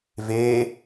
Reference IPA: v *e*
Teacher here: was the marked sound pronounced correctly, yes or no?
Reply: yes